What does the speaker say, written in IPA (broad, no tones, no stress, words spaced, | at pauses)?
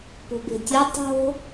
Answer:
po̤be̤tʲo tˤo̤